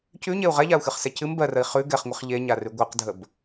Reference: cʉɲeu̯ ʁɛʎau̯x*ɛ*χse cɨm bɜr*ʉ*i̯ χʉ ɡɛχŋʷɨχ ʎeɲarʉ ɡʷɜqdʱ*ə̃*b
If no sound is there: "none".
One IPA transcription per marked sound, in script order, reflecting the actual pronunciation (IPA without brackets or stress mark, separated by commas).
ɨ, ə, ə